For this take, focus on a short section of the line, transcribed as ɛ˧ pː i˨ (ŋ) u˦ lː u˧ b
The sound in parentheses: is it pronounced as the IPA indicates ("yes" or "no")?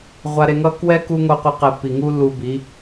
yes